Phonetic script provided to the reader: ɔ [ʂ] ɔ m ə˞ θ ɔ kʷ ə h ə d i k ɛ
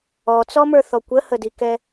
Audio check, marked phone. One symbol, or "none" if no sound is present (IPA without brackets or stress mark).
t͡s